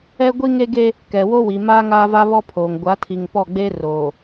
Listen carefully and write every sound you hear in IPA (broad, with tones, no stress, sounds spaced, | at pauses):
ɛ˦ ɡʷ i˦ ŋ e˦ ɡ e˦ | k ɛ˨ w o˦ w i˨ m aː˦ ŋ aː˦ v a˦ β ɔ˦ pʰ oː˨ ŋ ɡʷ a˨˦ tʰ i˨ ŋ p ɔ˦˨ ɡ͡b e˦ r oː˨